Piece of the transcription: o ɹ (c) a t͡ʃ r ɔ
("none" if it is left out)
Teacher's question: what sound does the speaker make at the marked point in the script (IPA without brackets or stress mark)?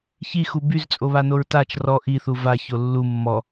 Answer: t